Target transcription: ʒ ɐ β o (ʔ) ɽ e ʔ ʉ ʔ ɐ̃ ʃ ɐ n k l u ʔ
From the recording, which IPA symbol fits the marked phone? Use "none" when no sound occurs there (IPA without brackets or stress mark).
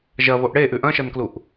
ʔ